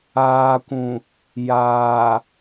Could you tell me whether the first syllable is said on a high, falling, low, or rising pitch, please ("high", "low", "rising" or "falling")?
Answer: low